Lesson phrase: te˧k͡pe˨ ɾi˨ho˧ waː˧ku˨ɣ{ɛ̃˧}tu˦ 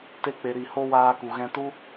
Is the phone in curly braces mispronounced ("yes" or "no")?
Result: no